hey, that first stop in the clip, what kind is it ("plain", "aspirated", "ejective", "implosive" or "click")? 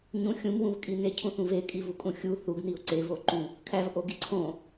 ejective